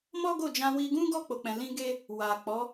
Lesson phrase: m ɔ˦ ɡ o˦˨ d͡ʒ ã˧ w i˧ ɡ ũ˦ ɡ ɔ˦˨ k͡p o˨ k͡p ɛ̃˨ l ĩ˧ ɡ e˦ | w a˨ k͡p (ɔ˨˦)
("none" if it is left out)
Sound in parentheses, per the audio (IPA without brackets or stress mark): ɔ˨˦